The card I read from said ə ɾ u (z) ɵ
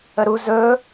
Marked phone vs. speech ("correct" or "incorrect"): correct